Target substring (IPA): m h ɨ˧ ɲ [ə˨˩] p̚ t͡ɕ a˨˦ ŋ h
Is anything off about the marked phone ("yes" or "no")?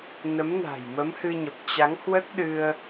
no